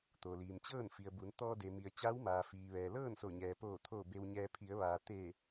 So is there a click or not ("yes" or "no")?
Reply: no